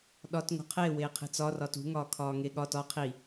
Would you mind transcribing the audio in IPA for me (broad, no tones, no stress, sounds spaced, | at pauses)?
ɗ ɒ t ŋ o̤ qʰ e w eː qʰ e̤ t͡s ɒ r ɒ t ṳ ŋ ɒː kʰ ɒː ŋ e ɠ ɒ t ɒ qʰ i